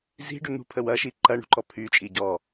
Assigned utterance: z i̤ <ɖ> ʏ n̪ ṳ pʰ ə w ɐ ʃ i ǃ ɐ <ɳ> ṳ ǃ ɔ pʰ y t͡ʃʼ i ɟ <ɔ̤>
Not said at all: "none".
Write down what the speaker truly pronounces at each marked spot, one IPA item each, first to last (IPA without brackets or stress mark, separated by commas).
ɖ, ɳ, ɔ